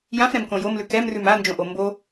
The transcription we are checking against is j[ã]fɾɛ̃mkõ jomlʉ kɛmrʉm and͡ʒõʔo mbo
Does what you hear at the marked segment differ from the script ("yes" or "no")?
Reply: no